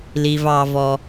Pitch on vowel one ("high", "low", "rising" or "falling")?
high